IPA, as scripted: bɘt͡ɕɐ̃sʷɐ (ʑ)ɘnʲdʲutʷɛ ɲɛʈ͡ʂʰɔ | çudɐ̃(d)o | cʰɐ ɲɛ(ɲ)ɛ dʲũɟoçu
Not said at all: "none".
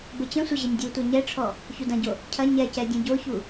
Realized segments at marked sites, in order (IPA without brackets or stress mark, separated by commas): ʑ, ɟ, c